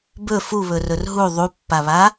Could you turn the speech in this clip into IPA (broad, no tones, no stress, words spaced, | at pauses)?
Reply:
bɵ fuβɵrɵr ɦu ðˤupːaβa